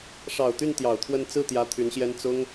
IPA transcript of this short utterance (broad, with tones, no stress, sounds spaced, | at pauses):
ʂ ɑ˨˩ ʊ̯ t̪ y˥˩ n t̪ j ɑ˨˩ ʊ̯ t̪ʰ w ə˥˧ n t͡s ɹ̩˥˩ t̪ j ä˧˥ t̪ʰ y˧˥ n ɕ j ɛ˥ n t͡s ʊ˥ ŋ